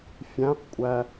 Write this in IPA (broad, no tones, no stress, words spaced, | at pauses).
fʲæ̃qkʷʼæ